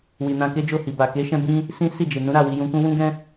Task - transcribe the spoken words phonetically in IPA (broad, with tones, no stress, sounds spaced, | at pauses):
w i˨ n ã˧ k e˦ d͡ʒ o˦˨ h i˨ b a˨ k e˨˦ ʃ ɛ̃˧ b ĩ˦ | s ĩ˦ s i˦˨ d͡ʒ e˨ n ũ˨˦ ɾ a˦˨ w i˧ j ũ˧ k ũ˦ w ũ˦ ɡ ɛ̃˦